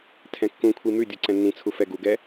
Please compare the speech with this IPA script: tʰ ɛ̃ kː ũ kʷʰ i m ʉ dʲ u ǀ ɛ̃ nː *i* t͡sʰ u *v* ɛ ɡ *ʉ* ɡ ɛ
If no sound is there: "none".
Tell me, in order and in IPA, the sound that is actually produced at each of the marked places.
ĩ, f, u

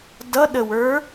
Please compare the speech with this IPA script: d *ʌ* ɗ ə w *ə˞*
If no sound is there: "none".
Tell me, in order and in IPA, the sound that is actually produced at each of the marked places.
ʌ, ə˞

